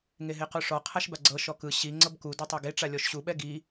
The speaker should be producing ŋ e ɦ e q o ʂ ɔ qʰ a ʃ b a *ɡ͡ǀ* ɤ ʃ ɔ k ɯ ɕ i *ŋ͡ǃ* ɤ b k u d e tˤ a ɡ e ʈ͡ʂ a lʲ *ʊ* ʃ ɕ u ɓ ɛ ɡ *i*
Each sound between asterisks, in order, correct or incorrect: correct, incorrect, incorrect, correct

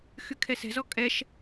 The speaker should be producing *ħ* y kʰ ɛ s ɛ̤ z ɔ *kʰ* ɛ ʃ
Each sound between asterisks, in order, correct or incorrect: incorrect, incorrect

